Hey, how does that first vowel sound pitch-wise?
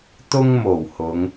high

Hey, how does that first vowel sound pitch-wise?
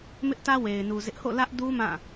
high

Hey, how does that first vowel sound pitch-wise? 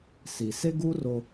low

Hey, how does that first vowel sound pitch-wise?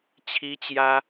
high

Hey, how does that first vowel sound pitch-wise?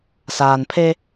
low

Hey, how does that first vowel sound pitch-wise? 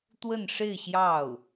falling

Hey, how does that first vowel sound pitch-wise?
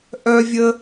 high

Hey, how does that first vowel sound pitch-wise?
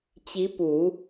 rising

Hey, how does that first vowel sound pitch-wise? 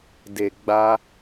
low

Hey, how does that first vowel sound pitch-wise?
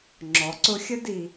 low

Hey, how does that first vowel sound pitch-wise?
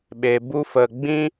low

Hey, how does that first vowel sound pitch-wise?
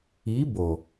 rising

